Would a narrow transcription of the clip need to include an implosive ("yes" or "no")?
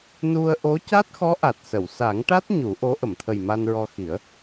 no